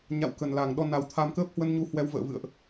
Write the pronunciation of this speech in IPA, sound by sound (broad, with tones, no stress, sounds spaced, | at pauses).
ɲ a̰˧˨ w k ə˨˩ n l a˨˩ ŋ ɗ ɔ˧ n a˨˩ w t̪ʰ a˧ m k əː˦˥ p̚ h w ə˧ n ɲ u˨˦ h w ɛ˧ w v ə̰ː˧˨ v ɨ̰˧˨ ə̯ ʔ